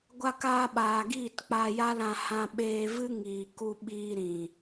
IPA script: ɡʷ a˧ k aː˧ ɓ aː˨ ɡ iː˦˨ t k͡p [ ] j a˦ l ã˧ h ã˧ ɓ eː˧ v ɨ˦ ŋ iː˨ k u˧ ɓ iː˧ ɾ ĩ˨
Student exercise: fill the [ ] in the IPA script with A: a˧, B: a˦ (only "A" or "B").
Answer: A